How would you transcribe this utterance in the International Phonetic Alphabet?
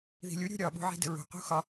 ð i̤ lʲ u ɾʲ ṳ ɾʲ ɒ ɓ ṳ ʕ i̤ d ə̤ ɹ ṳ q ṳ x ɒ

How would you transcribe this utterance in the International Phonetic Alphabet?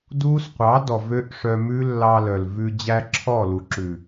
d uː˦ s qʷ ɑ˨˦ d ɔ˨ v ø˦ ʔ ʂ œ˧ m ʉ˦ lː ɑ˧ l œ˨ l v ʉ˧ d͡ʑ æ˧ ǁʰ ɔ˦˨ l u˨ ǁ ʉ˨

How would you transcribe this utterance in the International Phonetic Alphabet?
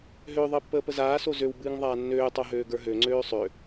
ɦ ø ðˤ əː pː əː p ə z aː s o z ø w b ɨː ŋ ðˤ aː nː øː tˤ o ɦ øː ɡ ə˞ ɦ ø ŋ͡ǀ øː sˤ ø

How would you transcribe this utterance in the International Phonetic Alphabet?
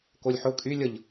k o lʲ ħ ʊ kʼ y lʲ ə ʎ

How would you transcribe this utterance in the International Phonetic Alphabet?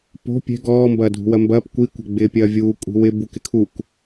p o̤ pʲ ɛ̤ ɡ ɔː m b ɐː dʱ ṳ w ɐ m b ɐː p kʷ i kʷ ɛ̤ ɡ͡b ɪː pʲ ɐː vʲ uː kʷʼ i̤ w ɪ b u k ɪ kʰ u k

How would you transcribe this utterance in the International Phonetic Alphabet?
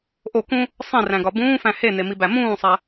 ʔ o k ũ | sˤ ĩ r æ̃ ɡ ɒ b ũː f æ̃ h e n e m i b æ m ũː sˤ æ

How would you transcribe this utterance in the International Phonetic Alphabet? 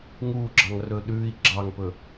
ŋ uː ɡ͡ǁ ɑ ŋ r ɵː ɗ ʉː i̯ ɡ͡ǁ ɑ ŋ p ɵ

